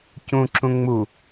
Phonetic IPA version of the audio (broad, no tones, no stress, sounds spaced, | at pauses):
c ũ ǁ ũ ŋ͡m u